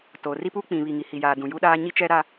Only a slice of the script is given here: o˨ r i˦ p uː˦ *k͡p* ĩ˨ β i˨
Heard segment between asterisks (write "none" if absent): k͡p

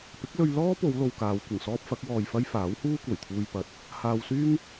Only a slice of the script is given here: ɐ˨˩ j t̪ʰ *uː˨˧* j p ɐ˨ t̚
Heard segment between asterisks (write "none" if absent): uː˧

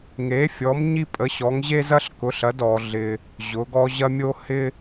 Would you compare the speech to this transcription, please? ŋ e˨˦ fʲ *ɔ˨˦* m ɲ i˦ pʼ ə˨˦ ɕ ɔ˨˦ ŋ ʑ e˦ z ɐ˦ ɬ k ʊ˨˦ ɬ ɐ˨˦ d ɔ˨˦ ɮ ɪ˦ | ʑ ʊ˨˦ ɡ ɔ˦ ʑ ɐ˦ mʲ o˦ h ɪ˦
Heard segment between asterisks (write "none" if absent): ɔ˨˦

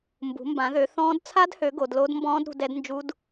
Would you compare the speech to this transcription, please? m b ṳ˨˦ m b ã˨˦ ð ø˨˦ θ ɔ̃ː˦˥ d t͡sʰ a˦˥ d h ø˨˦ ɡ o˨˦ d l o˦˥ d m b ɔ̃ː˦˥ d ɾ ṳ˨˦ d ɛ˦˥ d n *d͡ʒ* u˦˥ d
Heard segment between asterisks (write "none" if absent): d͡ʒ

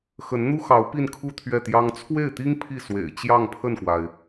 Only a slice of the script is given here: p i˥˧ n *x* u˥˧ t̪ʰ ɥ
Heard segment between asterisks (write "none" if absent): kʰ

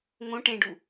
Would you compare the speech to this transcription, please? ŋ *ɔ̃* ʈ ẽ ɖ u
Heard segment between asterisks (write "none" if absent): õ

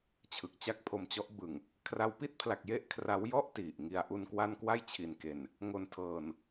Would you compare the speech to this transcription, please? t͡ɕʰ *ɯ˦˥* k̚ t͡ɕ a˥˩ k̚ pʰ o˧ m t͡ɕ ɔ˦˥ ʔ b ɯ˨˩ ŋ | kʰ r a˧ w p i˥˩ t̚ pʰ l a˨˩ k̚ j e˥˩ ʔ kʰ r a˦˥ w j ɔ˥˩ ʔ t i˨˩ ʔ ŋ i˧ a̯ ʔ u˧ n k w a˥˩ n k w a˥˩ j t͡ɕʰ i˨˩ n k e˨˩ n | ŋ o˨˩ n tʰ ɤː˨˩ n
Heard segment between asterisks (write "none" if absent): ɯ˨˩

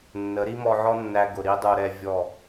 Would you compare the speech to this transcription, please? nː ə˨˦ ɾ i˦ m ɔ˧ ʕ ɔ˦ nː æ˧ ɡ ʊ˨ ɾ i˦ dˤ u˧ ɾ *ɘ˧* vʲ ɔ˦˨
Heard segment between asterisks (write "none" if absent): ɛ˧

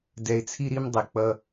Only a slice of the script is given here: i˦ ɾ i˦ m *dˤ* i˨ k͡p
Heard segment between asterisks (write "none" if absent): dˤ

